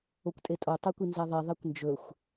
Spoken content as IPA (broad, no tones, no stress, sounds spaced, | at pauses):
o kʷ tʼ e tʼ o tˤ ɛ kʷ i n z ɛ ðˤ i ðˤ ɛ kʷ n d͡ʒ ɵ xʷ